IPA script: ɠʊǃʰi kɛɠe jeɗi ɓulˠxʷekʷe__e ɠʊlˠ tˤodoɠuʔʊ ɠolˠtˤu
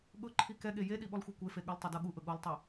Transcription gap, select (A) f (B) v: A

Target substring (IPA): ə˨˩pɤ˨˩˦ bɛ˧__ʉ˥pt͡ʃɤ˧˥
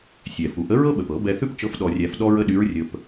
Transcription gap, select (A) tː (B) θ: B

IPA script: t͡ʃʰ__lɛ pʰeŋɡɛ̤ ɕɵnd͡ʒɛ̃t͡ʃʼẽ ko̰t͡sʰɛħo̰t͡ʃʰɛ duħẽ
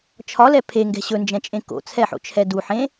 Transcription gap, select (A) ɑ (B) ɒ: B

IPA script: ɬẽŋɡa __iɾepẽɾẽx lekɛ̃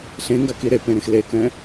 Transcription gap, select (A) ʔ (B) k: B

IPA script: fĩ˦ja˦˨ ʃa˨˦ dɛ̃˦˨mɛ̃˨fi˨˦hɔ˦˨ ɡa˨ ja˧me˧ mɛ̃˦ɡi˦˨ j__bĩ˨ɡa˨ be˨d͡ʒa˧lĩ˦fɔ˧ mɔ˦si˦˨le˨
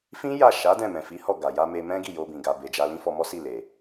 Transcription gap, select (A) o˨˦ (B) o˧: B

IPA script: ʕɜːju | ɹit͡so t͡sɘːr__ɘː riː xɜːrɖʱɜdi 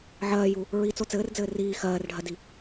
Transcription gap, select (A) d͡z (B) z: A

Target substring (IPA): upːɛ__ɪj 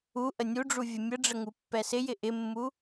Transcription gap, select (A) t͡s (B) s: B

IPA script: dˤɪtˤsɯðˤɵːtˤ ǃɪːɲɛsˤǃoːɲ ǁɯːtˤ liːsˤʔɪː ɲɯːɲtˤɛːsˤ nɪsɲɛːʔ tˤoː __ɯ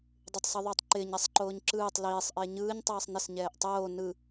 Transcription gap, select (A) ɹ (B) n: B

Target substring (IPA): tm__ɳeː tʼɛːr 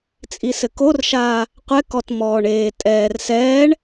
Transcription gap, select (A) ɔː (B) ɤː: A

